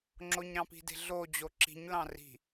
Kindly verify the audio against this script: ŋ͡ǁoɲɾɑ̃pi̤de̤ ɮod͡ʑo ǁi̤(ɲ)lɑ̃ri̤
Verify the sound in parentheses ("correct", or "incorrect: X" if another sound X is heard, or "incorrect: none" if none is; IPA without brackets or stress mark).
correct